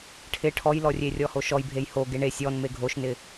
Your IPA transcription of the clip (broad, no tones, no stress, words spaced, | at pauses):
ʈʰɪ ʈʰɔjlɔrʲe rʲɔhoʃɔj bʱejho ɡeɳe sʲɔn meɡʱoʃnɪ